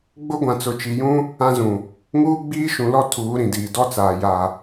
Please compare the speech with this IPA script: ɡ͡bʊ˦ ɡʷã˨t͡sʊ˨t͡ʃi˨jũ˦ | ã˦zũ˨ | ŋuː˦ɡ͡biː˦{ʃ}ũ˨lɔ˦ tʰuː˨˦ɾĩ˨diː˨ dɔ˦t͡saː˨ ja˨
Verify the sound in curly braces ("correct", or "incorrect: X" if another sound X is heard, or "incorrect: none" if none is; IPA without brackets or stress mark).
correct